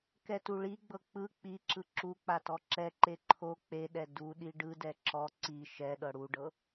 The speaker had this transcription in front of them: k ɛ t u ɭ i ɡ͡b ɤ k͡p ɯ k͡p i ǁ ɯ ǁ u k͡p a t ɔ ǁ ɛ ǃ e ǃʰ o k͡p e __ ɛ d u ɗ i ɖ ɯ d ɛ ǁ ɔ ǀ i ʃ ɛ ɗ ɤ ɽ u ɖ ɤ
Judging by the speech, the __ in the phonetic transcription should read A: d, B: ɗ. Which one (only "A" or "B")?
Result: B